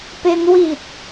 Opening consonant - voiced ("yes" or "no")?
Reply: no